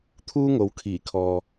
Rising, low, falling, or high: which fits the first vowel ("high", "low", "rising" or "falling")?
high